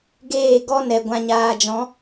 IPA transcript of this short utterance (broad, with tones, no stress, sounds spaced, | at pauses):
ɡ eː˦˨ ɡ ɔ˦ n ɛ˨ ɡʷ ã˨ ɲ aː˨ d͡ʒ ɔ̃˨˦